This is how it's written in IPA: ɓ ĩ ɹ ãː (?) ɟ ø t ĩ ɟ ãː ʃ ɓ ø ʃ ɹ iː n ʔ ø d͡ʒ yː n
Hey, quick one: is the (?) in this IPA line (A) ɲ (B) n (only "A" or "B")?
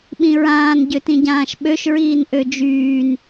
B